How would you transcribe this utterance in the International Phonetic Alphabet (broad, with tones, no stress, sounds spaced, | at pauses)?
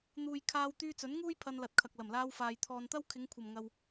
n̪ uː˨ j kʰ aː˧ w t̪ yː˧ t͡s ɵ˨˥ n ŋ uː˥ j pʰ ɐ˧ n l ɐ˨ t̚ kʰ ɐ˨ k̚ l ɐ˨˩ m l aː˧ w f aː˨ j t̪ʰ ɔː˨ n t̪ ɐ˥ w kʰ ɪ˨˧ ŋ kʷʰ ɐ˨˩ m ŋ ɐ˨ w